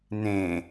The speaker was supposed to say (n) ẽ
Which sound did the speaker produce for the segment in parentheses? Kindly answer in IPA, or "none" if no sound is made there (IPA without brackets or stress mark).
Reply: n